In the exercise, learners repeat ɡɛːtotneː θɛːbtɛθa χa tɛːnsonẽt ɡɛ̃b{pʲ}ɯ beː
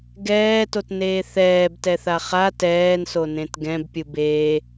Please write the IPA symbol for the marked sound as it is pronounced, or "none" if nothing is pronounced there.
pʲ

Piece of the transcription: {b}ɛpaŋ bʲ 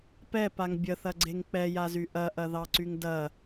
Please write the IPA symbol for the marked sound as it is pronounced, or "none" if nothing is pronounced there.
p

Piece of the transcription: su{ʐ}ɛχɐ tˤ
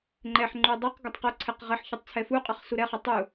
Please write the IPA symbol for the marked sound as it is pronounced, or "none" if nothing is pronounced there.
ɾ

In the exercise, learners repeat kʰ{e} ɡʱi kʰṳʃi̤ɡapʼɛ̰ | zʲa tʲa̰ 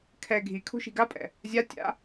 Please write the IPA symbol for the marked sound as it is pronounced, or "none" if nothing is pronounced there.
ɛ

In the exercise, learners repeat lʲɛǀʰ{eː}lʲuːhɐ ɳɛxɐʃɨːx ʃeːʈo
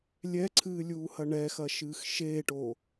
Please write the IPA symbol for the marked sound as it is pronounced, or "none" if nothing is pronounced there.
ɨː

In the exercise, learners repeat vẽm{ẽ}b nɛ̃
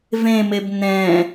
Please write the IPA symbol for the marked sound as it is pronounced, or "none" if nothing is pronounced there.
e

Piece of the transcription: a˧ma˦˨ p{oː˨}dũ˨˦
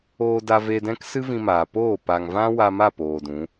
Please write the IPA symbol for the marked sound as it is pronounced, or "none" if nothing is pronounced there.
oː˨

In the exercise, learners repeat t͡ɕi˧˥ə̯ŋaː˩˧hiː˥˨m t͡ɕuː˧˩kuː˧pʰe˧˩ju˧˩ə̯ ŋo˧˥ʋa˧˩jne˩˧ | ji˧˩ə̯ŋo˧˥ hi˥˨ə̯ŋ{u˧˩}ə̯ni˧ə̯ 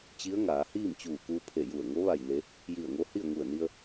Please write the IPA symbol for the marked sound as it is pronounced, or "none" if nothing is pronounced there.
u˧˩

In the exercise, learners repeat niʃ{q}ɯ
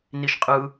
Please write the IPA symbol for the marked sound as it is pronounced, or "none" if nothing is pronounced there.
qʼ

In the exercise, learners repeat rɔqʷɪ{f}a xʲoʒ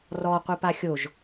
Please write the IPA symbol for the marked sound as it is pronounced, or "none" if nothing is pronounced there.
p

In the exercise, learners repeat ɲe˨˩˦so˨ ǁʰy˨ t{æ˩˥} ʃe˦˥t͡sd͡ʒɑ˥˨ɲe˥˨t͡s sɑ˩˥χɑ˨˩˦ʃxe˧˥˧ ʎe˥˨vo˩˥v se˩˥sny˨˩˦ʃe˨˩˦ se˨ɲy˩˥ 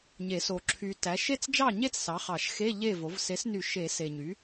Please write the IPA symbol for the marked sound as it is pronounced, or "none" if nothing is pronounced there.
æ˩˥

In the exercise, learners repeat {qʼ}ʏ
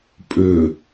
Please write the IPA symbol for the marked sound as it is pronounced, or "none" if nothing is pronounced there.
pʼ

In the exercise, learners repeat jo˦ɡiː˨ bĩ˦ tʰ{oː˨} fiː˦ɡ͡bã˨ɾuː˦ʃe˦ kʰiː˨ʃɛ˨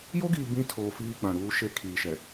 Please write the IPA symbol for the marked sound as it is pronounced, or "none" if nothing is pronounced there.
oː˨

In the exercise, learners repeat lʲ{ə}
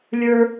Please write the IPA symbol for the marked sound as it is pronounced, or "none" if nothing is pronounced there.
ə˞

